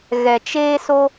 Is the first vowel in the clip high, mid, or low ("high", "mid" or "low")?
mid